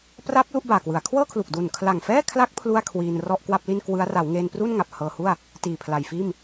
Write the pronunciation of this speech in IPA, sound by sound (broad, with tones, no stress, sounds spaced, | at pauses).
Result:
p r a˦˥ p̚ l u˥˩ ʔ b aː˨˩ k w ɯ˩˦ a̯ kʰ w ɤː˥˩ kʰ l u˨˩ k̚ d u˨˩ n kʰ l a˨˩ ŋ f ɛː˥˩ kʰ l a˦˥ k̚ pʰ l u˥˩ a̯ kʰ w iː˧ n r ɔ˥˩ ʔ k w a˥˩ p̚ l i˥˩ n k w ɯ˦˥ a̯ r a˩˦ w ŋ eː˧ n p r u˥˩ n ŋ a˨˩ p̚ h ɤː˧ h u˥˩ a̯ | t iː˨˩ pʰ l a˨˩ j f iː˥˩ m